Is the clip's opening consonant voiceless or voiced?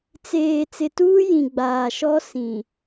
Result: voiceless